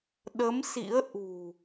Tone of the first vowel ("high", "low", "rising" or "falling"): rising